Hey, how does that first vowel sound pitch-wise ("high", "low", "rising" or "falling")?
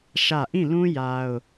falling